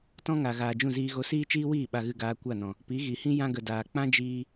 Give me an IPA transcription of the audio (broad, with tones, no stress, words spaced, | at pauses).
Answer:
tɔ̃˦ŋa˨ ɣaː˨d͡ʒũ˦˨ziː˧ɣo˧ siː˦t͡ʃiː˦wiː˦˨ ɓa˨ɣɨ˨ɡaː˨ kʷa˦˨nɔ̃˨ | pi˨˦ɣi˨hĩ˦ jã˦ɡə˨daː˨ k͡pã˦d͡ʒiː˧